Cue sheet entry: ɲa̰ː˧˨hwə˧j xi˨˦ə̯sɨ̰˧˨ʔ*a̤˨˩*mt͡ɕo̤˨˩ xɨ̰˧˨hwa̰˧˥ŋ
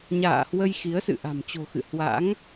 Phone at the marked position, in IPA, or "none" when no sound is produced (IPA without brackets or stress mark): a̤˨˩